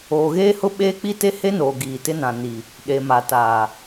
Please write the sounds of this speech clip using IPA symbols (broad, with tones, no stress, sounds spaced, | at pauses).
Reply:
oː˨ ɣ eː˦ h ʊ˦ ɓ eː˦ k͡p i˦ t e˦ h e˦ n oː˨ ɡ iː˨ t ɪ˦ n ã˨ n i˨ | ɗ e˨ m a˨ t a˨